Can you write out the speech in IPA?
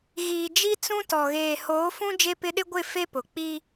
ɣ iː˨ d͡ʒ i˦ t͡s ũ˦ t ɔ˨ ɣ eː˨ h oː˨˦ f ũ˦ d͡ʒ e˦ p ɪ˦ ɗ ɪ˦ ɡʷ ɪ˦˨ f e˦ p ʊ˨ k͡p i˦

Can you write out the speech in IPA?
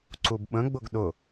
ǀ u b ɓ ə̃ ɡ͡b ʊ ɡ ɗ ʊ

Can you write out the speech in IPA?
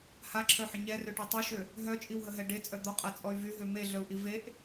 h a ǁʰ œ ħ ə ɲ ɛ r ø ʈ e tˤ y ʃ ø | ɦ œ t͡ʃʼ i w ɦ ə ɦ ɛ ɖ e t͡sʼ œ d̪ ɔ qʼ a t͡sʼ ɔ y̯ v y ɦ ø m e ɮ œ u̯ ʔ i v e ʔ

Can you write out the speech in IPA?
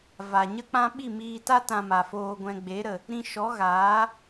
v a˨ ɲ ə˦ k͡p ã˦ ɓ i˦˨ m iː˧ t a˦ t ã˧ m a˨ f oː˧ ɡʷ ɛ̃˧ ɡ͡b e˨˦ ɾ ə˨ | ɾ ĩ˧ ʃ ɔ˨˦ ɣ aː˨˦

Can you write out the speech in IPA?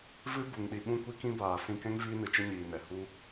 v ɨ˦ b u˨ ŋ ɗ i˨ ɓ ũ˦ kʷ i˦ k ĩ˦ b aː˨ s ĩ˧ k ɛ̃˦ ŋ v iː˦ n ɨ˨ t͡ʃ ə˦ ɲ iː˨ n ɛ˨ h u˦

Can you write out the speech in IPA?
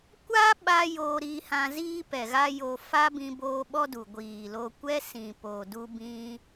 kʷ a˦ ɓ a˧ j oː˧ ɾ iː˧ h ã˧ z iː˦ p ɛ˨ ɣ a˦ j o˧ f a˦ b ĩ˧ b oː˧ ɓ ɔ˦ d u˨ ɡʷ iː˨ l o˧ kʷ ɛ˦ s ĩ˨ p oː˨ d u˧ b ĩ˧

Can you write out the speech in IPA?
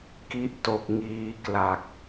k i˦˥ ʔ t o˨˩ k̚ ŋ iː˧ k l a˨˩ k̚

